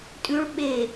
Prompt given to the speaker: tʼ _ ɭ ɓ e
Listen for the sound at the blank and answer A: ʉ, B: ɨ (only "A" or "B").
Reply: A